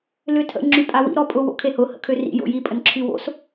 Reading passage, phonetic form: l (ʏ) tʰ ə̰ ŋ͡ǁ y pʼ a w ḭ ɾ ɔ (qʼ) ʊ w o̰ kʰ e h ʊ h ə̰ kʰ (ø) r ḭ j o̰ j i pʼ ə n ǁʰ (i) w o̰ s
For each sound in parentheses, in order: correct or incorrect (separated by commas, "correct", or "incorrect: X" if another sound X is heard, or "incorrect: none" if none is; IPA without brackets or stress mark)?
correct, incorrect: pʼ, correct, incorrect: y